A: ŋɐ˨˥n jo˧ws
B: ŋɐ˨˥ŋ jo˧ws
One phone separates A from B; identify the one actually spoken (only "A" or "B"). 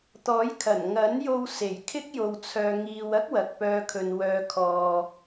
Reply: A